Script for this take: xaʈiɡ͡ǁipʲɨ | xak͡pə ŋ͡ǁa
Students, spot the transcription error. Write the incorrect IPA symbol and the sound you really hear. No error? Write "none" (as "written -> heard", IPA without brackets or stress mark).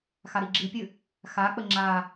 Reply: ʈ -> ɾ